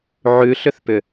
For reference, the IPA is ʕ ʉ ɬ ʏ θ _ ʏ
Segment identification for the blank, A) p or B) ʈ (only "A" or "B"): A